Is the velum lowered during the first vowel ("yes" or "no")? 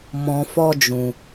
yes